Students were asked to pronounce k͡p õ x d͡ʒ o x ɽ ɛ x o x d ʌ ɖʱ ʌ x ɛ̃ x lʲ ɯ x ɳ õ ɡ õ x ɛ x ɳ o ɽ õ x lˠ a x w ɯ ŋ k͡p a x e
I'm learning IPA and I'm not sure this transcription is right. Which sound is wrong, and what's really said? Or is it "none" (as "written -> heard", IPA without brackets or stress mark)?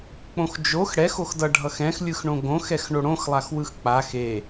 ŋ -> x